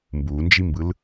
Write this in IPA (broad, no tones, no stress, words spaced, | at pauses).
mbund͡ʒimbɯl